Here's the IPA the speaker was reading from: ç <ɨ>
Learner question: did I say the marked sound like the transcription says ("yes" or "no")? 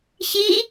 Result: no